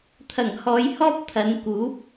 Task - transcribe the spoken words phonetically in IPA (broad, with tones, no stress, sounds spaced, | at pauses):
t̪ʰ ɐ˨˩ ŋ h ɔː˨˧ j h ɔː˥ p̚ t̪ʰ ɐ˨˧ n k uː˨˥ p̚